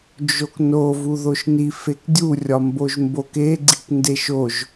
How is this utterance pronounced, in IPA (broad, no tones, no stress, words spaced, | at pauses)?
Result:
d͡ʒokno vuðoʃni fekdʲu rʲɒmboʒmbok e ɡ͡ǀikndeʃoʒ